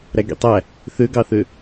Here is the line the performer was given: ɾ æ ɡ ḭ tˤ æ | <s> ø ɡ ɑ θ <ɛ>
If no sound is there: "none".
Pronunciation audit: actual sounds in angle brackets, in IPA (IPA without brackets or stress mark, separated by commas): θ, ø